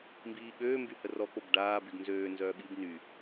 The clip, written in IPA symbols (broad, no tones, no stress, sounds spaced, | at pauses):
m b iː ɠ øː m b y h ə r ɔ k͡p o b ɖ aː b y ɡ n z øː n z œː ɓ i b n y